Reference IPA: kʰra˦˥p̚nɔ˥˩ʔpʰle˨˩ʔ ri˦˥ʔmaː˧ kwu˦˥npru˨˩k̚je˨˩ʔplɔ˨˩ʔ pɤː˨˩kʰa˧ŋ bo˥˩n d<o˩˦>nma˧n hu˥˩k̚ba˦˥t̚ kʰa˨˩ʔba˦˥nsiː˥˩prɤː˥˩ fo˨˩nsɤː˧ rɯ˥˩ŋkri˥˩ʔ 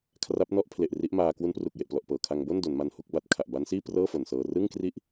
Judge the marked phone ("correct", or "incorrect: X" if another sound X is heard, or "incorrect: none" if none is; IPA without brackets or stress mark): correct